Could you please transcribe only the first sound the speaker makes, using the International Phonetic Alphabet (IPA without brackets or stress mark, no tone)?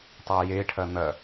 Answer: tˤ